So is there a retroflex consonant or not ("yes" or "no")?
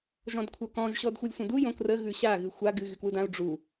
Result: yes